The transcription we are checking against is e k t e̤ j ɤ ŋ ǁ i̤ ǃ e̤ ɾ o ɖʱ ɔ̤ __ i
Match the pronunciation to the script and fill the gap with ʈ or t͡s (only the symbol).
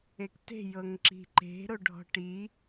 ʈ